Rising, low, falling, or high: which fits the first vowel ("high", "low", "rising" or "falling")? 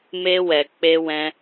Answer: high